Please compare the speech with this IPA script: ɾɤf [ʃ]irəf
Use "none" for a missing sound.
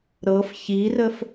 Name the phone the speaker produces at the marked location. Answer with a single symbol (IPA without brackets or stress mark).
ç